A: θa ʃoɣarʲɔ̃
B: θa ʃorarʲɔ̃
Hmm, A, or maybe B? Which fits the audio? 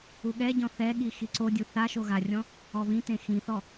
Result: A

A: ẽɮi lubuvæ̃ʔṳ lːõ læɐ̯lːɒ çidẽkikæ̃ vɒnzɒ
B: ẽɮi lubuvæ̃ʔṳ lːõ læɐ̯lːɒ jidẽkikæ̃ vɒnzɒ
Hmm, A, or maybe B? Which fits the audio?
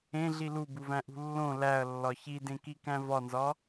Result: A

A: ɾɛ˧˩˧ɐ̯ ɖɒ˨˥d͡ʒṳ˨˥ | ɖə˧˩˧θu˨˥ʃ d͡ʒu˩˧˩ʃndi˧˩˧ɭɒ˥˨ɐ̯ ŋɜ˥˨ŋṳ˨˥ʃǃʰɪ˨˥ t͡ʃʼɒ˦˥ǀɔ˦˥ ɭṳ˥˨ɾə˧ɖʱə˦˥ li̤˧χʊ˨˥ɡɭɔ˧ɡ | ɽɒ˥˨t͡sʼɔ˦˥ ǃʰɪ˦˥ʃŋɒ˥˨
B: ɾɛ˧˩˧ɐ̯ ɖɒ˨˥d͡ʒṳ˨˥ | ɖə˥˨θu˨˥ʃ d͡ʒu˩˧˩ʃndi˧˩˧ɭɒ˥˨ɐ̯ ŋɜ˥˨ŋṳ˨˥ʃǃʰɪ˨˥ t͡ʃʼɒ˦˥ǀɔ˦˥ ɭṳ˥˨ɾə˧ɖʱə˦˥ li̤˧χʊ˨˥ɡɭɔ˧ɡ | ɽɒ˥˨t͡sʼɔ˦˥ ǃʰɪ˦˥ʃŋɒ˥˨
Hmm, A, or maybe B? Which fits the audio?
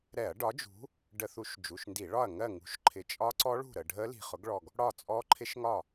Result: A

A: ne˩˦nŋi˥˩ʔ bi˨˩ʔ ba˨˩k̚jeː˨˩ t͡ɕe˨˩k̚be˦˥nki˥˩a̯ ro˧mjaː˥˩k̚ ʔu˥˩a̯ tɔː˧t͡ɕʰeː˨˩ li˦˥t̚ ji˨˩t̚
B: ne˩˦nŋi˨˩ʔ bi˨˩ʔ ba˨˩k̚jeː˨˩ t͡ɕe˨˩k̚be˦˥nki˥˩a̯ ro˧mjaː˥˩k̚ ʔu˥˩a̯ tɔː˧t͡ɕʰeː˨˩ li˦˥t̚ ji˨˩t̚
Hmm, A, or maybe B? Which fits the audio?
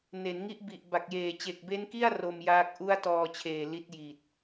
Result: A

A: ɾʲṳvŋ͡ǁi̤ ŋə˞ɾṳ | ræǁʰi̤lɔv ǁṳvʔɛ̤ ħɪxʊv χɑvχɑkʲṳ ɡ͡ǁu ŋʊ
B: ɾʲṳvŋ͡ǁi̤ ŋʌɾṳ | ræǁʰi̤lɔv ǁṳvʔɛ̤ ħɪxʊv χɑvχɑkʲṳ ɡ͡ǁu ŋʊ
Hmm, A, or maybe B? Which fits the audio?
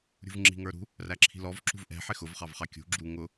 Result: A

